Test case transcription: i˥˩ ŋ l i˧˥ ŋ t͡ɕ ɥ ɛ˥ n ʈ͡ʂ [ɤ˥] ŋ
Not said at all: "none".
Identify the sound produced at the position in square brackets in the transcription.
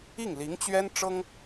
ɤ˥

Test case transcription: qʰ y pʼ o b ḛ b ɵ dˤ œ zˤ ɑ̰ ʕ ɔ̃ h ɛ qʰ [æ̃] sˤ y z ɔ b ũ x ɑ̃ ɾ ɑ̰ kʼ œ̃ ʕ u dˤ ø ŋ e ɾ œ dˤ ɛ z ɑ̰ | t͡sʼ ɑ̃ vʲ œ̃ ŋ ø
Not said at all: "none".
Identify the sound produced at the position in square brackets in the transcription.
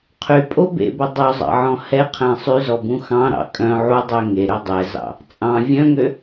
æ̃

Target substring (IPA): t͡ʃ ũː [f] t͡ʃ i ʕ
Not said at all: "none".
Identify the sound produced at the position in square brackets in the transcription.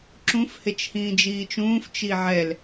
f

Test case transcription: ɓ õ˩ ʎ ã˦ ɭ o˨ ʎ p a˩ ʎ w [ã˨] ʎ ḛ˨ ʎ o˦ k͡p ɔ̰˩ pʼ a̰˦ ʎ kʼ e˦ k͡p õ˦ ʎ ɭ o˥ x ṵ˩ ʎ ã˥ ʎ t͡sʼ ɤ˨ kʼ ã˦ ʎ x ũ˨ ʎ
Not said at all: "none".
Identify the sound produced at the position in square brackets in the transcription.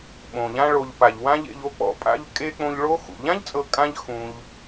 ã˦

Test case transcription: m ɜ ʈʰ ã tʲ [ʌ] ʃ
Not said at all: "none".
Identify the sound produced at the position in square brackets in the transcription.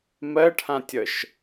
ʌ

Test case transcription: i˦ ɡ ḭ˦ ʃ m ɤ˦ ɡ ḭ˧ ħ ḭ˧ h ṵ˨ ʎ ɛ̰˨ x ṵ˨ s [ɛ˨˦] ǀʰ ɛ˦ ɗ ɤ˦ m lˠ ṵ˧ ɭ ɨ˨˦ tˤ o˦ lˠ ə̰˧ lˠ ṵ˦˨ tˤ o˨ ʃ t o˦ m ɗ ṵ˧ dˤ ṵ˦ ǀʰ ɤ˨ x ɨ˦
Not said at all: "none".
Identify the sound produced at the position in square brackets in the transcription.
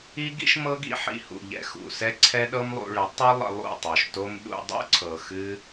ɛ˦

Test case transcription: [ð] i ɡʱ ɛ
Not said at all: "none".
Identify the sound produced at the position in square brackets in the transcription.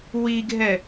w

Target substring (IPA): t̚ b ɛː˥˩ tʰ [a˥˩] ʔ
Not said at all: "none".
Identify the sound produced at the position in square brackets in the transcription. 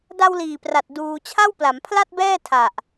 a˨˩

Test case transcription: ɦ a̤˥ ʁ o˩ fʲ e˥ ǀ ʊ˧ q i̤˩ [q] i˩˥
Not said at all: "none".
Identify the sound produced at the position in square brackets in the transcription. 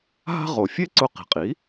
qʼ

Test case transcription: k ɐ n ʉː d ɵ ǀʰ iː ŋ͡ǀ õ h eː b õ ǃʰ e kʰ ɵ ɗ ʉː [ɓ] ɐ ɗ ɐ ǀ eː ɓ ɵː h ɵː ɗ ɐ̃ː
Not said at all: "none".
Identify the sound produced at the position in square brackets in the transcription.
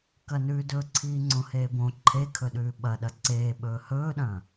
ɓ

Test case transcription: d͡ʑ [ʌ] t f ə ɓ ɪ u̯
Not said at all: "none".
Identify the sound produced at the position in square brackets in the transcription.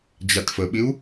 a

